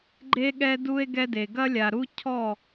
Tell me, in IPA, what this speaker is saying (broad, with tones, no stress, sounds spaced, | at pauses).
ɡ͡ǃ e˦ ɠ ɛ˦ d u˦ e̯ ɡ ɛ˦ d e˨ ɡ ɐ˦ lʲ a˨ ɾ u˦ cʰ ɔ˦˨